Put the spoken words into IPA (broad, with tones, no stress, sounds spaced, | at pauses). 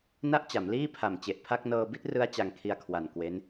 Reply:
n a˥˩ ʔ t͡ɕ a˩˦ m l iː˥˩ pʰ a˨˩ m t͡ɕ e˨˩ ʔ pʰ a˥˩ k̚ n ɤː˧ b i˥˩ t̚ r ɯ˦˥ a̯ t͡ɕ a˧ ŋ kʰ i˧ a̯ kʰ w a˨˩ n k w e˦˥ n